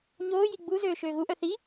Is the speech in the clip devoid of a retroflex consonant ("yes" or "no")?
yes